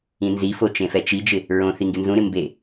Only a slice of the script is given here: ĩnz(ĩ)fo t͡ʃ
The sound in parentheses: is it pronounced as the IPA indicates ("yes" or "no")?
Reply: no